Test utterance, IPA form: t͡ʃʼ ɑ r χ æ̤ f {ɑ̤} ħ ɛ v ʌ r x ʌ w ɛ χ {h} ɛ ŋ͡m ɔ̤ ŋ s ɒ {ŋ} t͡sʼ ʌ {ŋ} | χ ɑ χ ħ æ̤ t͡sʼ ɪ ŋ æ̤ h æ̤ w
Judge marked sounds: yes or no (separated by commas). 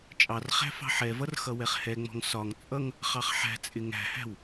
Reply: yes, yes, yes, yes